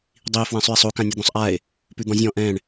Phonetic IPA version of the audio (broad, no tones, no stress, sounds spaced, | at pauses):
dˤ i e̯ f w ɛ̃ sˤ ʉ e̯ sˤ o k ã nʲ ʉ d̪ ɔ̃ sˤ ʔ a e̯ | p ʉ d̪ ɔ̃ zʲ ɔ̃ ʔ ɛ̃ ɳ